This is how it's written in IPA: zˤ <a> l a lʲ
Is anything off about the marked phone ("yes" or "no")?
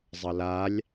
yes